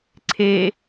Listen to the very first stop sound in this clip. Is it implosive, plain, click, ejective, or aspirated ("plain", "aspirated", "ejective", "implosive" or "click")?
click